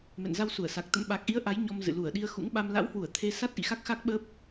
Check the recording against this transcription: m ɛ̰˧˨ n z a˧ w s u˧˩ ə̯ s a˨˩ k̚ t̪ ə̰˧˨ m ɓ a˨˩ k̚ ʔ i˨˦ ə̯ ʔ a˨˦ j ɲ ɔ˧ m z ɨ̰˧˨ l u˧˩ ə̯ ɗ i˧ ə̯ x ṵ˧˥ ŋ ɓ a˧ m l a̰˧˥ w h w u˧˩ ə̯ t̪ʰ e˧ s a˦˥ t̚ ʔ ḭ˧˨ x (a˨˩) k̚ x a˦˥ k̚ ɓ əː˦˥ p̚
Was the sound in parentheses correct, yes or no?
no